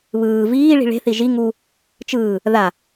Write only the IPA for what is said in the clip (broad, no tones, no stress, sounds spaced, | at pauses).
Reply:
β ɯː v iː ɭ i̤ ɭ e̤ θ i ʒ i ŋ u | t͡ʃ ɯː | ð a